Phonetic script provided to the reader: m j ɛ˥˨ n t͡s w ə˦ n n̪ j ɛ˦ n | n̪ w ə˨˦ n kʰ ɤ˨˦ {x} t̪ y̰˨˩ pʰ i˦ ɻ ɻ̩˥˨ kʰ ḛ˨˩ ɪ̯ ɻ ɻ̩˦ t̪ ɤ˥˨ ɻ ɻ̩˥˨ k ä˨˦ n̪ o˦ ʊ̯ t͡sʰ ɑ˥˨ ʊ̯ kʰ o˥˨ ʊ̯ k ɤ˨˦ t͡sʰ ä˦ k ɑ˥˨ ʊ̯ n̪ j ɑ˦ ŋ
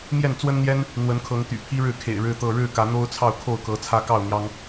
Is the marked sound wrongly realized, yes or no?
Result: yes